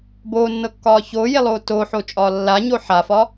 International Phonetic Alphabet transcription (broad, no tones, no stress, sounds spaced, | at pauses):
b oː nː ɤ kː ɒː ç oː j e lˠ oː t oː ħ o t͡ʃʼ ɒː lː a ɲ o ħ a f ɒ